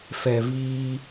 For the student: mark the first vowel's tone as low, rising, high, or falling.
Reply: low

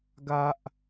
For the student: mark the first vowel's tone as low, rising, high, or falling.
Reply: high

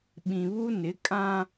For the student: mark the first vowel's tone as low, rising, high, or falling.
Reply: low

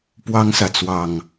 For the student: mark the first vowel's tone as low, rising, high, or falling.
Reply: high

